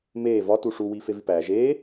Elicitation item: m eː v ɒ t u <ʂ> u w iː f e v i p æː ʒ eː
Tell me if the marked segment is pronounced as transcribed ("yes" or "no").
yes